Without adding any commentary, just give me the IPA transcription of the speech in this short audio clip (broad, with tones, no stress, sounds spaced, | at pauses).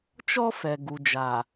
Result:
t͡ʃ ɔ˦ f ɛ˨ ɡ u˨ d͡ʒ a˨